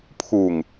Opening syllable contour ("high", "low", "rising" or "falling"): low